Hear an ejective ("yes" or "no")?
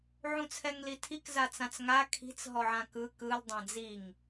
no